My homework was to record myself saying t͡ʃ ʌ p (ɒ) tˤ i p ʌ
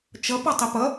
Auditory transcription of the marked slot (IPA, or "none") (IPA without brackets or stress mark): ɒ